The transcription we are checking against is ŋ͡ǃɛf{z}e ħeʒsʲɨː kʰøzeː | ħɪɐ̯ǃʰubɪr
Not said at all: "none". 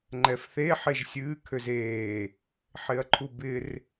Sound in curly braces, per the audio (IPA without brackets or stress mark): θ